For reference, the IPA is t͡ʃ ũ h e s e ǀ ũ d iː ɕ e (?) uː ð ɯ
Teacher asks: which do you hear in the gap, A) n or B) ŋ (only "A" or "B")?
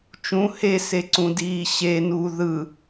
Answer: A